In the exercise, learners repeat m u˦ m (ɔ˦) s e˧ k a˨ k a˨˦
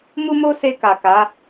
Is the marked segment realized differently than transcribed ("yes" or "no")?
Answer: yes